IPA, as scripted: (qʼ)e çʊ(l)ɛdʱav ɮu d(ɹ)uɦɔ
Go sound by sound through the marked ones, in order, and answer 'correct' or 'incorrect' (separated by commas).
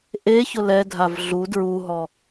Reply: incorrect, correct, correct